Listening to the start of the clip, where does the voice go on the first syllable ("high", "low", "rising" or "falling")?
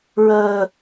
low